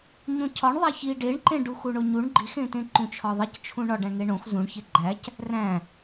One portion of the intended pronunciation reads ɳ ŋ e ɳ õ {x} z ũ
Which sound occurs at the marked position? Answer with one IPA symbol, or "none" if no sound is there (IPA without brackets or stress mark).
x